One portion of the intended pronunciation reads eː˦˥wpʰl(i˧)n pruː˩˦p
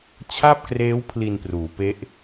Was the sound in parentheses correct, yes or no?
yes